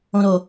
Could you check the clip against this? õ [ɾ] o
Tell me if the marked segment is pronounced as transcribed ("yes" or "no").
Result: yes